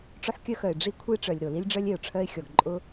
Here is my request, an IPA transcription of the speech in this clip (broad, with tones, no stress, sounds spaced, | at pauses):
ʈ͡ʂ o˥ ħ kʲ œ˥ x œ˩ ɪ̯ ɖ͡ʐ i˥ kʷʰ i˥ ʈ͡ʂ œ˩ lʲ ɾ o˩ l i˥ lʲ ɖ͡ʐ œ˥ lʲ e˩ ʊ̯ ʈ͡ʂʰ œ˥ ɪ̯ xʲ ɔ˩ ɡ ǃʼ ʊ˥